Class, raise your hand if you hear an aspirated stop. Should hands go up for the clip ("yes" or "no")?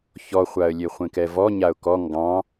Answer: no